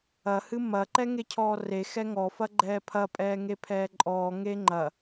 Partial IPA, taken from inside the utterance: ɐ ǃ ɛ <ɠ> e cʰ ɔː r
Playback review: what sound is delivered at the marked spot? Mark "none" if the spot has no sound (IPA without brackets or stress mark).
ŋ